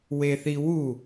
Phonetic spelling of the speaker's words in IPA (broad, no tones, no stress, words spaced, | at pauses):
weθiwu